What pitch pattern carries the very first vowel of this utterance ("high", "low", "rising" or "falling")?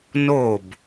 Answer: falling